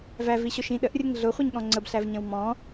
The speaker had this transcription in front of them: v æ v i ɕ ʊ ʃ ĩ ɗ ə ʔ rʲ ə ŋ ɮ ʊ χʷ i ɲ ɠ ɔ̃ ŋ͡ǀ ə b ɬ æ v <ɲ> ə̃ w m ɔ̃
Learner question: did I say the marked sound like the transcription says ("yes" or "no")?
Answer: yes